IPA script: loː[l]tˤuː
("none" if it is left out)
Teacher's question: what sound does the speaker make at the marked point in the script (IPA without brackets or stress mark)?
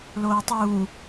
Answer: none